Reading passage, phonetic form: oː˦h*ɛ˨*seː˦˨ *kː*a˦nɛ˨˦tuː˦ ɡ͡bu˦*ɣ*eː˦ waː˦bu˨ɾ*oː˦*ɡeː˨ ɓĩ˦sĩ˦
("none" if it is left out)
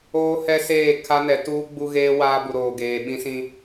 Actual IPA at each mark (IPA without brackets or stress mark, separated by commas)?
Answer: ɛ˦, kʰ, ɣ, oː˨